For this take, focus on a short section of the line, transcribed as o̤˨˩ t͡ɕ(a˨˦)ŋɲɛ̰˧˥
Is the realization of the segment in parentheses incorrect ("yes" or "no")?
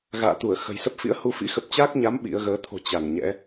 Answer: yes